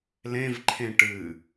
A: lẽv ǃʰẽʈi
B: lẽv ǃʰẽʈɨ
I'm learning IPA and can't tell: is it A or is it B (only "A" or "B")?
B